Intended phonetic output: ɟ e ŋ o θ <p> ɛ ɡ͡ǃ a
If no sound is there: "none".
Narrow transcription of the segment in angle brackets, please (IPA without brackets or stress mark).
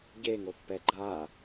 p